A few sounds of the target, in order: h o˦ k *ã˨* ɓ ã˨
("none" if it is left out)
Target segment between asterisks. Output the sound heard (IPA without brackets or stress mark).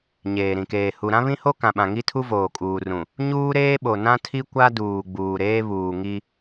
ã˨